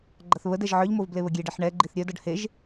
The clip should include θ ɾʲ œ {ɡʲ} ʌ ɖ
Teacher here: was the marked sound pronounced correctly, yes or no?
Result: no